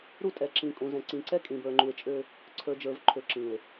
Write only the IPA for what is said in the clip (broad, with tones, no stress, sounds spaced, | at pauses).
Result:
ɾ u˦ tʼ ɛ˨ ǁ ĩ˨ kʼ ũ˨ z ɛ̃˨ ǀ ĩ˨ ǀ ɛ˦ kʼ ĩ˨ b ə˞˨ ŋ͡ǃ u˨ e̯ t͡ʃʼ ø˦ | ǀʰ ə˞˨ d͡ʒ ə˞˨ v ǃʰ ø˨ ǁ ĩ˨ e̯